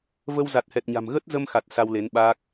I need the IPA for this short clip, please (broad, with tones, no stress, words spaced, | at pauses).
və˧w za˨˩t̚hɛ˨˩t̚ɲa̤˨˩m ɣə˦˥t̚zə˧mxa˨˩t̚ sa˧wle˨˦nɓaː˦˥k̚